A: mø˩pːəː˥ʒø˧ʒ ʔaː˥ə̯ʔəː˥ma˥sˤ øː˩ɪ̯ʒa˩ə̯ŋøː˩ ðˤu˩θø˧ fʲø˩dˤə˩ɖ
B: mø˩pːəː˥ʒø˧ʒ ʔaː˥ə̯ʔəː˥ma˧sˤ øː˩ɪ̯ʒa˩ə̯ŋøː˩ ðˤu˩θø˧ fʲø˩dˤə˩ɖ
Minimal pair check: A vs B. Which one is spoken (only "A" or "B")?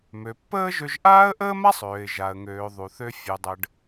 A